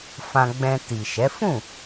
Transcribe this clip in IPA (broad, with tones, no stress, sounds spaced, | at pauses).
f ã˧ ɡ͡b ɛ̃˧ t i˨ ʃ ɛ˨˦ f ũ˦˨